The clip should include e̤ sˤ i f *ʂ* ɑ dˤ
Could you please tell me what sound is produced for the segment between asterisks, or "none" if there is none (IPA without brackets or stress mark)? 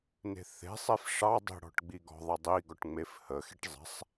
ʂ